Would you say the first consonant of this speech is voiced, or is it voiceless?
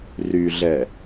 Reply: voiced